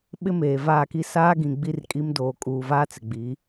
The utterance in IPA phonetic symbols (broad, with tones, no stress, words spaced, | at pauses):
ɓɪ˦meː˨vaː˦˨ki˦ saː˦ɡĩ˨ ɡ͡bi˦rkʼi˦m doː˨ kʼuː˨vaː˦ t͡sɪ˨ɡ͡bi˨˦